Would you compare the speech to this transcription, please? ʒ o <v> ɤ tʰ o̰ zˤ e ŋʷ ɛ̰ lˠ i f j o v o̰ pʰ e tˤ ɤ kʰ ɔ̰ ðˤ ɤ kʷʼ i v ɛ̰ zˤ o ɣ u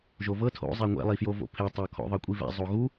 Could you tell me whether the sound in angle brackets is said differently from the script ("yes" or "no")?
no